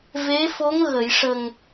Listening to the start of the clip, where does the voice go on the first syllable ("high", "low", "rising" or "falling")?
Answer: rising